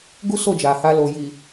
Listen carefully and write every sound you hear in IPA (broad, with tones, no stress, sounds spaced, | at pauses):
ɡ u˦ s o˦˨ d͡ʒ a˨ h a˧ l o˨ j i˨